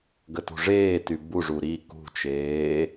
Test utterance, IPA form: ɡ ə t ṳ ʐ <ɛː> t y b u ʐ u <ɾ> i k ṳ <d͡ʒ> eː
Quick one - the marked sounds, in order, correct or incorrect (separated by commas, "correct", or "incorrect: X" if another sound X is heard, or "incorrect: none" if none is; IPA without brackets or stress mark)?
incorrect: eː, correct, incorrect: t͡ʃ